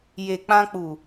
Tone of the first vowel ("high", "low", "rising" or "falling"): low